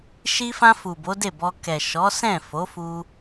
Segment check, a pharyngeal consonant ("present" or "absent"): absent